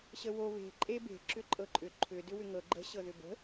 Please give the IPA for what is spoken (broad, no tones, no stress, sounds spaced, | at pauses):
ɕ ə w o β e̤ ǃʼ e b e̤ ǁ ʏ ǃʼ ɤ ǃʼ ʏ ǃʰ ʏ d ʏ w ʏ ŋ ɤ ɡ͡ǃ ə̤ ɕ ɤ ð ʏ b ə̤